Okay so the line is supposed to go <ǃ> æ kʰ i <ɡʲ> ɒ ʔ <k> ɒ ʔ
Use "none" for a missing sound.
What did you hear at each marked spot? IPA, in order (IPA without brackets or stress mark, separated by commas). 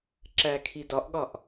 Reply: ǁ, d, ɠ